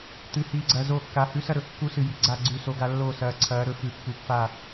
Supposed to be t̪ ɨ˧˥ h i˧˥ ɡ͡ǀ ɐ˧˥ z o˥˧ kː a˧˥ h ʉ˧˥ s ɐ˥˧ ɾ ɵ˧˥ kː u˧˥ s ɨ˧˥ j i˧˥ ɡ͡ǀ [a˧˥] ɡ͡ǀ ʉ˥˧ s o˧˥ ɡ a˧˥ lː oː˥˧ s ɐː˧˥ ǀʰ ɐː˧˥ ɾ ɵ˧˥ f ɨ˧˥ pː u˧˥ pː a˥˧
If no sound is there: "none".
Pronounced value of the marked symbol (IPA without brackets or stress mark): a˥˧